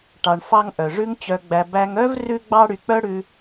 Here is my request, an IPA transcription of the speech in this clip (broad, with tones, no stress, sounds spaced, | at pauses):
ʈ ɑ˧ ɳ f ɑ˥ ŋ ʔ œ˩ ʐ ʉ˧ ŋ t͡ɕ œ˧ ɡ͡b æ˧ b æ˧ ŋ œ˥ v r ʉ˥ ɡ͡b ɑ˥ ɽ y˧ k͡p œ˥ ɽ ʉ˧